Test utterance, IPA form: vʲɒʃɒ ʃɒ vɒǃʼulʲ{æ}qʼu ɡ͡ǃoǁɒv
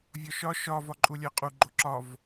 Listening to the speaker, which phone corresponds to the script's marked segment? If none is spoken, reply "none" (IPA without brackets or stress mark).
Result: æ